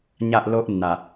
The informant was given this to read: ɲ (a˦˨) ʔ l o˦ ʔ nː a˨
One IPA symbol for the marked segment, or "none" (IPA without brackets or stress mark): a˦˨